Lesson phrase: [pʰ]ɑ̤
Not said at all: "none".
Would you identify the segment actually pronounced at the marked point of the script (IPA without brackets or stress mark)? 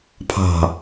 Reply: pʰ